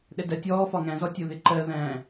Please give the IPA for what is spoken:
ɗɛdɜtʲɔː fɒŋæ̃zɔ tʲʊðɪ ǃɜ ðæ̃

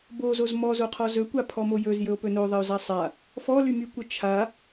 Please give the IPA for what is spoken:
bozoz mɔzoqʰɔ zɵkʷa pʰɔmojɵz jɵo̯pɵnoðˤəo̯ zasˤa | fɔlymykʷə t͡ʃʰa

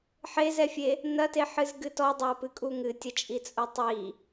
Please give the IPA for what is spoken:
ħezɛfʲe | nɐteħɨzɡɨ tɔdˤapɨkʼu ŋɨtʲɐt͡ʃʼit͡sʼo tˤi

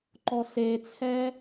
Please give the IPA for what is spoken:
ǃɔset͡sʰɛ

